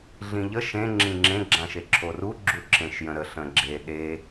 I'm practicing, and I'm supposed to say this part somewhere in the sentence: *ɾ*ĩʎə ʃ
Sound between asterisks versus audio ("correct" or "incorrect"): incorrect